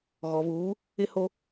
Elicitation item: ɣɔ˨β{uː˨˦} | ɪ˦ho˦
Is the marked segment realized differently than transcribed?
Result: no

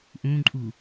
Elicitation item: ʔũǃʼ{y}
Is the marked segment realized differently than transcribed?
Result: yes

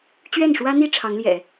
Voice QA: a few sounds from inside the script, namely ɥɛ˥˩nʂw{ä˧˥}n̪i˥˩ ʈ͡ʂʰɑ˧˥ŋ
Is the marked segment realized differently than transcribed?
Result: yes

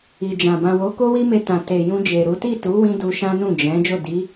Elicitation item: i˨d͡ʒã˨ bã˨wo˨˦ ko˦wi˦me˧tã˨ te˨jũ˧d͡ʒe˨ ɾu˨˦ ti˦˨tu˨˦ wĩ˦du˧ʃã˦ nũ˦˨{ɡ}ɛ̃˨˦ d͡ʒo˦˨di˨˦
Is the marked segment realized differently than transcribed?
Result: yes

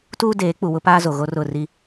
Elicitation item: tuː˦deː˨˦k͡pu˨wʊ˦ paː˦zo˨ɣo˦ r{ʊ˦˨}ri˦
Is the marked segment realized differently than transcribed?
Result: no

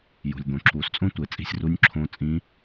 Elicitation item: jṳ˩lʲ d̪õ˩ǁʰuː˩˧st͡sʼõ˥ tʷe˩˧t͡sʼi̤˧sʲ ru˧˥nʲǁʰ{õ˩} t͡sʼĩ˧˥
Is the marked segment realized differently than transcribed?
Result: yes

